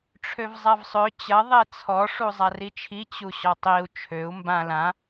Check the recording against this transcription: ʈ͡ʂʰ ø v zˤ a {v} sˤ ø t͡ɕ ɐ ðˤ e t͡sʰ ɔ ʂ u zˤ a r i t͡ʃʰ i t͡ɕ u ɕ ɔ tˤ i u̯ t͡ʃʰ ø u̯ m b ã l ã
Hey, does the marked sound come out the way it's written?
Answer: yes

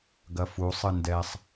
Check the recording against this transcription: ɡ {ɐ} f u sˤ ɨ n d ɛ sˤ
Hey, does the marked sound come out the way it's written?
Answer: yes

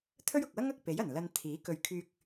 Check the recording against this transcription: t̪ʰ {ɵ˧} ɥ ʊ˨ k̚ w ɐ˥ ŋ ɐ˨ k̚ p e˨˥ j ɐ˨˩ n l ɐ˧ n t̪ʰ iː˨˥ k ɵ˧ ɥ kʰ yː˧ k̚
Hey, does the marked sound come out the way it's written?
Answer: no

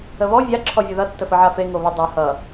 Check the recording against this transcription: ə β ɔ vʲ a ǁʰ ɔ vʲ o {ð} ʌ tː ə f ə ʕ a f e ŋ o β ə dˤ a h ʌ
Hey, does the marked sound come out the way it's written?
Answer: yes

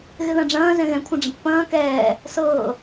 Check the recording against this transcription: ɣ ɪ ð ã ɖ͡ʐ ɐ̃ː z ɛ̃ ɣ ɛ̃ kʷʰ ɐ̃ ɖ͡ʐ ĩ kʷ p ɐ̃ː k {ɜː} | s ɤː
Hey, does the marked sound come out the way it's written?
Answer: no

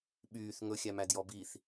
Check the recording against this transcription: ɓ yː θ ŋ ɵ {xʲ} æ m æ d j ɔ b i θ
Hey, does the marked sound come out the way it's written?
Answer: yes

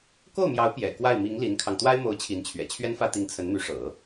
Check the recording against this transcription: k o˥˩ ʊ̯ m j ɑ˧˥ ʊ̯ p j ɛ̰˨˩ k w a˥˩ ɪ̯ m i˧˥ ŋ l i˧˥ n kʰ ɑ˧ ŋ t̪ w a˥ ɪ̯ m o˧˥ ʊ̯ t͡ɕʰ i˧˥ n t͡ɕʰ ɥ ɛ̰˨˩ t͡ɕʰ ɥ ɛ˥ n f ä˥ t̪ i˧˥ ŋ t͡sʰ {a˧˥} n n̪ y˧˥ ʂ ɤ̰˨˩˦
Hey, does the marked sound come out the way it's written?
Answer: no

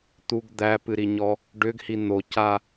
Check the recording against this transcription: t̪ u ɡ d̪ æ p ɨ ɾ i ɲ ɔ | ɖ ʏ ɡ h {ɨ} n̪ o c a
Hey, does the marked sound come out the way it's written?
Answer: no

